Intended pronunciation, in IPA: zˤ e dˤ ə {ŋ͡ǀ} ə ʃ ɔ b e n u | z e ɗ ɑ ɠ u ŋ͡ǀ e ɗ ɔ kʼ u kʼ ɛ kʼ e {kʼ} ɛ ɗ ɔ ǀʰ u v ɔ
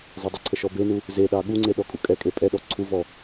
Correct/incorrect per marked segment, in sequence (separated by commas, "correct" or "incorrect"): incorrect, incorrect